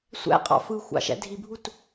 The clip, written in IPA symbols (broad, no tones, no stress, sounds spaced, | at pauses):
sʷ æ̰ qʼ ɑ̰ f ɯ xʷ ɑ̰ ʃ æ̰ dʱ i bʱ u t